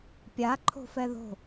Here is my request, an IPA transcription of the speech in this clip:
pʲaǃʰo̤fɛ ðo̤

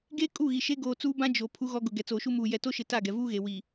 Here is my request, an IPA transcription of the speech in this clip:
ɡeː˦ kʼu˦˨ɣi˨ʃe˦ ɡoː˨t͡suː˦bã˦ d͡ʒo˨ pʰu˦ɣɔ˦ɡʊ˨ ɡɛ˨t͡soː˨ʃu˦muː˨ jɛ˨to˦ʃɪ˨ ta˦˨ɡɛ˨ vuː˦ɣe˨ wi˨

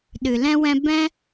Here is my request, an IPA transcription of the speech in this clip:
ɗɨ˨lɛ̃˦wɛ̃˦ bɛ̃˦

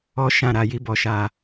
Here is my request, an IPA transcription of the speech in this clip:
ɔ˦ʃã˦˨ ɾa˨˦ji˦bɔ˧ʃa˧

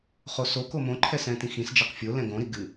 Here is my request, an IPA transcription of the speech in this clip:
χosoko mõǃʰɛ sɛ̃tĩxĩsd͡ʒɛq fʲolɛ̃ ɡõɾi ɡɨ

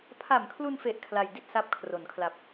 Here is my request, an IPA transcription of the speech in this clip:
pʰa˨˩mkʰlu˧nfe˨˩ʔ kʰla˧j di˥˩t̚sa˦˥p̚ kʰro˩˦nkʰla˨˩p̚

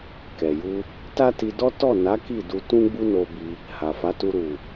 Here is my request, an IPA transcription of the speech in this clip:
kɛ˨ju˧ | ta˦ti˧dɔ˦ tɔ˦˨na˨˦ ki˦˨du˧ tũ˦ɡ͡bu˦no˧ bi˧ | ha˨fa˨˦tu˧ ɾu˨

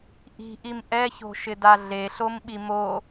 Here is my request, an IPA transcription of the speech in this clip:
ʔi̤ʔim ʔɛço̤ʃɪda ɮeɬomɓi mo

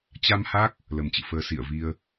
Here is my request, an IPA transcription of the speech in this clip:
t͡ɕa˧mha˦˥k̚ | lə˨˩mt͡ɕɨ̰˧˨fəː˨˦ sḭ˧˨ə̯vi˧ə̯

